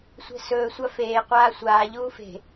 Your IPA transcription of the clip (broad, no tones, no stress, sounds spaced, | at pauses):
sʷ ɛ̤ s ɵː sʷ a f eː qʷ aː sʷ aː ʎ uː f e̤